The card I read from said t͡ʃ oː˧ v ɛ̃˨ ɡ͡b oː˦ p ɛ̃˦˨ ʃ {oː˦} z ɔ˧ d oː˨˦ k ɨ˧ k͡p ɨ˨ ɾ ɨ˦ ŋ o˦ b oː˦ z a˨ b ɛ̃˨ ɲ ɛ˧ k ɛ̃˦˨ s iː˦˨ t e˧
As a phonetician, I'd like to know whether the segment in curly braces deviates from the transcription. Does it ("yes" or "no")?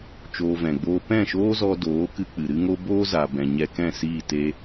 no